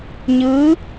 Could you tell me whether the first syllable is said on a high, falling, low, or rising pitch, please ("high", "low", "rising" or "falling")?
rising